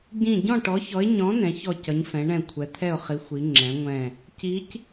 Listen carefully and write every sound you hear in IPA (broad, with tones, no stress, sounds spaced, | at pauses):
ɟ ĩ˦˨ ɟ ɔ̃˦˨ ʈ ɔ˨˦ ç ɔ˨˦ ɪ̯ ɲ ɔ̃˨˦ n ɛ̃˨˦ ç ɔ˦˨ c ʌ˨˦ ɲ f ɛ̃˨˦ ɳ ɛ̃˦˨ kʷʰ ɛ˨˦ t̪ʰ ɛ˦˨ ʊ̯ χ i˨˦ xʷ i˨˦ ŋ͡ǁ ɛ̃˨˦ ŋʷ ɛ̃˦˨ | c i˨˦ c